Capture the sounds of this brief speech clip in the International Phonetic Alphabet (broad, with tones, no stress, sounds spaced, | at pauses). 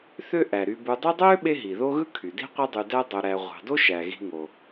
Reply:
θ ø˦ ʔ æ˩ ɾ y˨ b u˨ dˤ i˦ dˤ øː˥ ɓ e˦ ɦ i˩ ð o˦ ɣ ɯ˥ kʰ y˩ d i̤˥ qʷ e˦ dˤ y˨ d æ˦ dˤ o˨ ɾ æ˨ ʁʷ ɑ̤˨ d o˥ ʃ æ˩ ɣ i̤˨ ŋ o˩